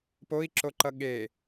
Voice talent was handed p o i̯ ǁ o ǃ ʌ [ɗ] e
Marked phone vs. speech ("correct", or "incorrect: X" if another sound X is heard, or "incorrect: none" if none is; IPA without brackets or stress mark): incorrect: ɠ